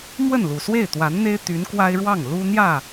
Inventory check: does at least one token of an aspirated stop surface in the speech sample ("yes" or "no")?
no